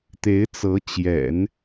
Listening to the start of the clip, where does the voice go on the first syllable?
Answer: rising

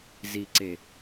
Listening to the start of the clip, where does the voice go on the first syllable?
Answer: low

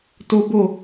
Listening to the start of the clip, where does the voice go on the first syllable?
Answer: high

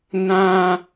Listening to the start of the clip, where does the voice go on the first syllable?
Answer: high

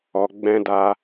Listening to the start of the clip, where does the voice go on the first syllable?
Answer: low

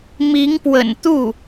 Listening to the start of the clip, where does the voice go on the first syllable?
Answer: rising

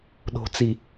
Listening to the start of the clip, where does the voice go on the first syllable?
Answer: low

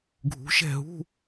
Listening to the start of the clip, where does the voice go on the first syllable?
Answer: rising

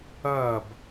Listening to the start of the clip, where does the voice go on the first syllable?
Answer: falling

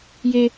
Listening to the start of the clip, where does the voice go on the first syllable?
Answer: high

